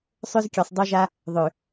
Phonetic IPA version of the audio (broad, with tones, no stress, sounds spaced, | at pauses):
sˤ ø˦ z kʲ ø˨ sˤ dˤ o˦ ʒ a˦ | ðˤ ø˨